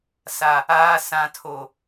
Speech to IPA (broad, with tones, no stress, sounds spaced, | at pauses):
s a˨ | aː˨ s ã˨ tʰ o˨